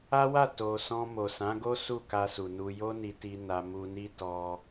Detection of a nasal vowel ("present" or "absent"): present